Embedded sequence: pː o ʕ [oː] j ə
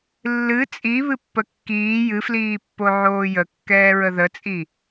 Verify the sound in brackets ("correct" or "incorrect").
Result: correct